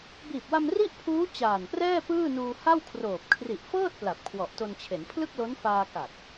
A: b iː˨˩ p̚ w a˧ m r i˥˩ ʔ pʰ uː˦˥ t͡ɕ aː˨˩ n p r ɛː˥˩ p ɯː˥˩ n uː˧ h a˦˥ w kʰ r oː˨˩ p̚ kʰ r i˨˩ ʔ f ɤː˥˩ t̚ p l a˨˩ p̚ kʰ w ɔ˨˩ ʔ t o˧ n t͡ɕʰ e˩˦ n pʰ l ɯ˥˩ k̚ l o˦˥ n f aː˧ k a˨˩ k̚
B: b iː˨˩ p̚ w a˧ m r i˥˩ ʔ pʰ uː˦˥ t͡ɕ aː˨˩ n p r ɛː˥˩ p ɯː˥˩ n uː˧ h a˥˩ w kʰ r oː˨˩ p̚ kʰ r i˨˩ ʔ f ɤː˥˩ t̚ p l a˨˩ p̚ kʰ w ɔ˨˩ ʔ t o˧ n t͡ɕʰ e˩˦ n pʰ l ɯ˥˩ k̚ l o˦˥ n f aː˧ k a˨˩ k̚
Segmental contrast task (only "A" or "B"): B